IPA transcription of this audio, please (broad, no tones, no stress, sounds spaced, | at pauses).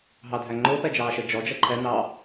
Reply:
ɦ ɑ dʱ æ ŋ͡ǃ ʊː p ɛ d͡ʒ ɑː ʃ ə d͡ʒ ɔ d͡ʒ ʌ ǃʰ ɛ n ɑ